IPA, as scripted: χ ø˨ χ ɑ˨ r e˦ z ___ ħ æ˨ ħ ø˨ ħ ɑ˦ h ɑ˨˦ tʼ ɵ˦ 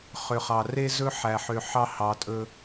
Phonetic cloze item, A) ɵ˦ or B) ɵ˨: A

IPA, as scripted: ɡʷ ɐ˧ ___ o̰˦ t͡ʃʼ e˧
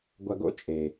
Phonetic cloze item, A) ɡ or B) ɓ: A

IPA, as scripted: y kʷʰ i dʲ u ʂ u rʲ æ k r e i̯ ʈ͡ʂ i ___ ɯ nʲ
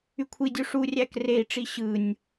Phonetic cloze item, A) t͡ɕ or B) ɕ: B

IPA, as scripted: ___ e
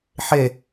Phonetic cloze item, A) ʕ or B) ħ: B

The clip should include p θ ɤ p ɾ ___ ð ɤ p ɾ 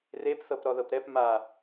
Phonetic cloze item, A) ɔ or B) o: A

